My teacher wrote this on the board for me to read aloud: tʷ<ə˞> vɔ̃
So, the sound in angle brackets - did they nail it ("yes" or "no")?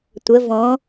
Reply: no